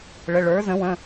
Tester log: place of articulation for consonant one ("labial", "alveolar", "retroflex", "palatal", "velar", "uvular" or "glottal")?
retroflex